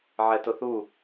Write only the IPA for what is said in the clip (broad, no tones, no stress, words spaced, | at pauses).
ʕɛtʊθu